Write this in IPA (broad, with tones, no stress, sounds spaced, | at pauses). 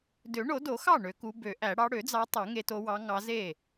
d ø˨˩˦ ɳ o˨˩˦ d o˨˩˦ x ɑ˥˩ ɳ ø˨˦ k u˨˦ b ø˨˩˦ ʔ æ˨˩˦ ɽ ɑ˨˦ ɽ ø˨˩˦ d͡z ɑ˨˦ tˤ o˨˩˦ ŋ e˨˦ t o˨˦ w ɑ˨˦ ŋ ɑ˨˦ z e˥˩